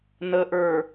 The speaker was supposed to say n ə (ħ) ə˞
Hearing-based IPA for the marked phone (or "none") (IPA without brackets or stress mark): ʔ